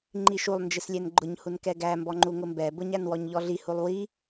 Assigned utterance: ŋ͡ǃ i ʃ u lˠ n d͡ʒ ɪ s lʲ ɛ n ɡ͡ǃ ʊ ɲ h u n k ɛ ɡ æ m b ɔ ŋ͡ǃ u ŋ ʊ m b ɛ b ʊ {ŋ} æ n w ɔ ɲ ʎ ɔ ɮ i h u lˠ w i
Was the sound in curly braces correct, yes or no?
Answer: no